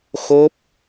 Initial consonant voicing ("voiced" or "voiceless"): voiceless